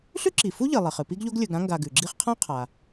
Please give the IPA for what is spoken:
ɬʉ˥ǁi˩ fu˥ʎɨ˩ lˠe˩χɨ˩pi˥ɡʎo˥ɡ lʲɵ˨ɡɾã˥ŋɡa˨ ɡʉ˩ ɡ͡ǁi˦χqʰã˥qʰa˩

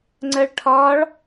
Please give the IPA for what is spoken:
ŋ͡ǀɜɭʈʰɒːɭ

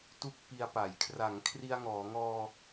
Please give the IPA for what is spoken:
tu˥˩k̚pi˧a̯pa˩˦j kʰra˩˦ŋkʰri˧a̯ŋɔː˩˦ŋɔː˧

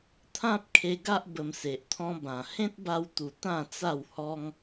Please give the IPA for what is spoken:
t̪ʰã˦p̚kʰe˧ɡa˦ʔ bə˧mse˨ʔt̪ʰɔ̃˦bã˨˩ hẽ˦t̚ba˧wt̪u˨˩ t̪ã˥˧t͡sa˥˧whɔ˦ŋ

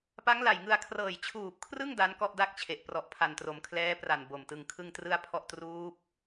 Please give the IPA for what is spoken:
pa˦˥ŋla˨˩jŋɯ˧a̯ kʰrɤː˨˩jt͡ɕʰuː˨˩p̚kʰrɯ˥˩ŋ da˦˥nkɔ˥˩ʔda˥˩k̚t͡ɕʰe˨˩ʔ prɔ˨˩ʔpʰa˨˩ntro˩˦m kʰlɛː˦˥pra˨˩n bo˨˩mtɯ˧ŋ kʰɯ˥˩ŋtrɯ˥˩a̯pʰɔ˥˩ʔ truː˦˥p̚

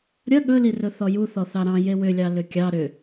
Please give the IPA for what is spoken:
ɾʲɐ ɠɵlirɵ θɔju θɔθɑɾɑ̃ jewʏlʲɑ lʏkʲɑ ɾʏ

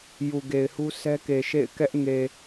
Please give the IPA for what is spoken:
ju˨ɡe˨ɪ̯hu˦ sʰɛ˦ke˨ʃḛ˦˨ɪ̯ kɛ˦ʔŋe˨

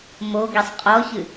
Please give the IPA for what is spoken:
moɡisˤ qʼɔçɨ

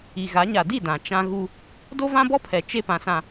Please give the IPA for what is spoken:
i˨ɣa˨˦ ɲa˨di˦˨ dã˨ t͡ʃã˦ɣu˦ | do˦vã˦bɔ˦pʰɛ˨ t͡ʃe˦pã˨sã˨

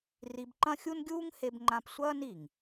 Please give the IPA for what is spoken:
ri˧bǃɐ̃˥xʲu˥n ɡʲuː˥ŋhe˧bŋ͡ǃã˧p sʷɐː˥n i˩ŋ

